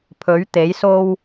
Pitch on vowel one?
rising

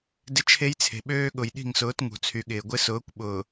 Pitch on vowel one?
high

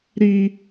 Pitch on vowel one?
high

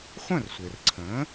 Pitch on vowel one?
falling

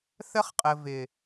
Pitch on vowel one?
high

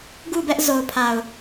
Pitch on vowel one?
falling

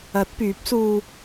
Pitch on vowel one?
rising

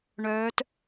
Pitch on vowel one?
rising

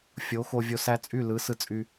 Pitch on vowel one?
rising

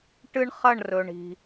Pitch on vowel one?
high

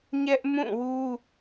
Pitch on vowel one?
high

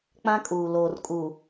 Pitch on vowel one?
high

